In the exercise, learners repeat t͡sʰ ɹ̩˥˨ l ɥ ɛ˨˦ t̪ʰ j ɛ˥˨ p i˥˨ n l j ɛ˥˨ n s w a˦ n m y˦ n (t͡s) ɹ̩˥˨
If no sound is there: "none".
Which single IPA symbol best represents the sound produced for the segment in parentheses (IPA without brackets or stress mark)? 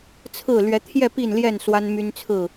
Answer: t͡sʰ